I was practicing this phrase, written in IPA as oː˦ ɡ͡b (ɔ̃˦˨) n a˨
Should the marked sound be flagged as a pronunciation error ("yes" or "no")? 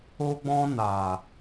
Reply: yes